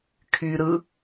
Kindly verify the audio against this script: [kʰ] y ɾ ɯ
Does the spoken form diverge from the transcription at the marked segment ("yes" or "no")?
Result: no